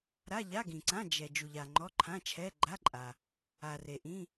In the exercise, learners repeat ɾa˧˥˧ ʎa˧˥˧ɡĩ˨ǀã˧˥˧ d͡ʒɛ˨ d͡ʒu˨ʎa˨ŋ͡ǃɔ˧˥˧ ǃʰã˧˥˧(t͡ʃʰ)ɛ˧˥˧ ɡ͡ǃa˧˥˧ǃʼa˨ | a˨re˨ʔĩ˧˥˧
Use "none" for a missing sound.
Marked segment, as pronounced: t͡ʃʰ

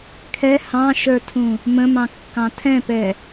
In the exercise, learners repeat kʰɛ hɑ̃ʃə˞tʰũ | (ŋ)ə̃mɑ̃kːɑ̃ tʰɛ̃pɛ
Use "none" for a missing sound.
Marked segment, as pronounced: m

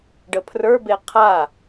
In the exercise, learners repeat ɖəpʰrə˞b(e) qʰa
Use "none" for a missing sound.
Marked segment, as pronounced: e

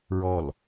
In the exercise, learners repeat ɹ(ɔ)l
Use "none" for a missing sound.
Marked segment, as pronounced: ɔ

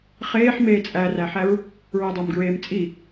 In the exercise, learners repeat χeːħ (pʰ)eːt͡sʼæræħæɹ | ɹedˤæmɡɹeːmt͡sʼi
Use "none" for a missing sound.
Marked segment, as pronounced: m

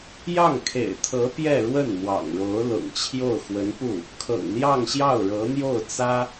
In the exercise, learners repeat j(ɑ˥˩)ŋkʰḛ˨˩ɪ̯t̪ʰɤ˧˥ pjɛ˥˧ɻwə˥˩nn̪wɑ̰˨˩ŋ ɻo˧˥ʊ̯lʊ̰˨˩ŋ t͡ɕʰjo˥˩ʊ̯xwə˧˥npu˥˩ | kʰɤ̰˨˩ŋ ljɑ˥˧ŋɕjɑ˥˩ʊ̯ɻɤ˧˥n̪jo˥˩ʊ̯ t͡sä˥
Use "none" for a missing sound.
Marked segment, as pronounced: ɑ˥˩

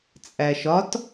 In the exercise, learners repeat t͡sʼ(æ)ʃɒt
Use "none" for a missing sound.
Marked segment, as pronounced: æ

